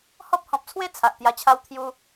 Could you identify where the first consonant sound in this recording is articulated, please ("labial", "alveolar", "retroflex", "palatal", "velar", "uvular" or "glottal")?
glottal